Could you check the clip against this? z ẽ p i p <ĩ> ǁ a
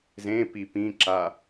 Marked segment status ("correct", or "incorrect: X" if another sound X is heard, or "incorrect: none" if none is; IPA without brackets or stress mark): correct